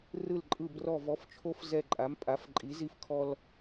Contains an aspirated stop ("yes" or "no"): yes